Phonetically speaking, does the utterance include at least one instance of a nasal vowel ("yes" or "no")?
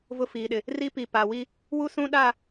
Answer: yes